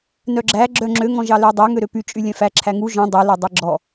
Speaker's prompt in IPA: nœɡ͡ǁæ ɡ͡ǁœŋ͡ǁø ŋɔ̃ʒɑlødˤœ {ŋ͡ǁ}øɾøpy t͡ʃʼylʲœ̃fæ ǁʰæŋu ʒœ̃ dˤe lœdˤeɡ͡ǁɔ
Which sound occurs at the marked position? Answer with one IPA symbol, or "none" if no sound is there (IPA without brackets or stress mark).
ŋ